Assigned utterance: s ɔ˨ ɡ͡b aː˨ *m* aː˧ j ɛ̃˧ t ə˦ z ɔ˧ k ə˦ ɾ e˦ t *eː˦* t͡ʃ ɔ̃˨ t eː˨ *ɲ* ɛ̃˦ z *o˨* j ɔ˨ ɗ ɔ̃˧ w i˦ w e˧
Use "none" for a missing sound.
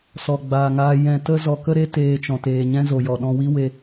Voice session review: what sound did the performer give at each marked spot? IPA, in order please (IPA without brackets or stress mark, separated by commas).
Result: ŋ, eː˧, ɲ, o˨